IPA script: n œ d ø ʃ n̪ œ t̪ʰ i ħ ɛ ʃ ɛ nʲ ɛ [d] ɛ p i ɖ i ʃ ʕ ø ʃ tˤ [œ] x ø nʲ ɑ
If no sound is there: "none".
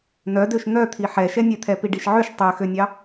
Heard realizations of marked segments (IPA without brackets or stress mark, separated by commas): t̪ʰ, ø